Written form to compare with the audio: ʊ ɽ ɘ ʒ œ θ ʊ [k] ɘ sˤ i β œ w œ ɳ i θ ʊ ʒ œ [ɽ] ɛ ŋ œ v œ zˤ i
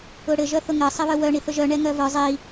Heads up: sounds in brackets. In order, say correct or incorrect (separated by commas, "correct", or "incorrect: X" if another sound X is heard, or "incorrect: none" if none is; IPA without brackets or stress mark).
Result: incorrect: ŋ, incorrect: ɳ